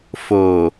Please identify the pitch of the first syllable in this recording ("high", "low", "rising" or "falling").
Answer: low